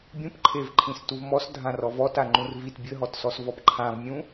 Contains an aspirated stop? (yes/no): yes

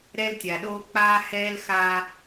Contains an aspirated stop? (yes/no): no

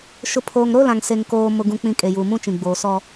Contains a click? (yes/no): no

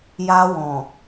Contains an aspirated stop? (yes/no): no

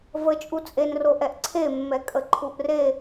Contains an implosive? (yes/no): no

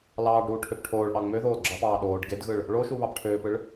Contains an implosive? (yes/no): yes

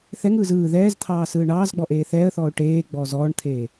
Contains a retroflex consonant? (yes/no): yes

